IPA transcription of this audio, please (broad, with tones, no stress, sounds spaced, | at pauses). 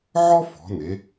ʕ ɔ˥ f ɔ̤˩˧ n e˩˧